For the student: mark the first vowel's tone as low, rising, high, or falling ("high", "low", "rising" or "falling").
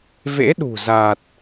rising